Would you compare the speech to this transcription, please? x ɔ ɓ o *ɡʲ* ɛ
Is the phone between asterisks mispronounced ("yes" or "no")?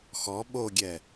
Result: no